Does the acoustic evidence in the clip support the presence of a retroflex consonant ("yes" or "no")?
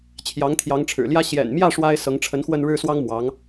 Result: yes